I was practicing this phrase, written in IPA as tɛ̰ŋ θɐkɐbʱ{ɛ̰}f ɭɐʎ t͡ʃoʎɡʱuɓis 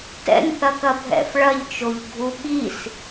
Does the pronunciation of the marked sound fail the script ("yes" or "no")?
no